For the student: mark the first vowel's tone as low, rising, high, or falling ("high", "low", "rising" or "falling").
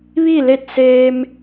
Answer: falling